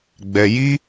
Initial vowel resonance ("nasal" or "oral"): oral